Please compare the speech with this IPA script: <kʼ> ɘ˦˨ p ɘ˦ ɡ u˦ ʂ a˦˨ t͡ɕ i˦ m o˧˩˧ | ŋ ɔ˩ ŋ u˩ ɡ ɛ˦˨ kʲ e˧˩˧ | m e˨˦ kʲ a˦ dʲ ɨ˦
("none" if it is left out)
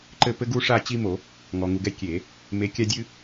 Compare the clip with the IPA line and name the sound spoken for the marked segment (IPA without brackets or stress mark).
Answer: ǃ